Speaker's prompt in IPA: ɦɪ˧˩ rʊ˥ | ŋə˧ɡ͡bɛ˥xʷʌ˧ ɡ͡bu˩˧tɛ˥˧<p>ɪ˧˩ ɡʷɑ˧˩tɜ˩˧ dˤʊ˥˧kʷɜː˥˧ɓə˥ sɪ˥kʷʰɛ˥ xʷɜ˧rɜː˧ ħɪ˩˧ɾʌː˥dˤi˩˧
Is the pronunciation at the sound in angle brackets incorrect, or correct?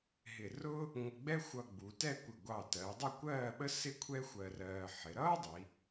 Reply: incorrect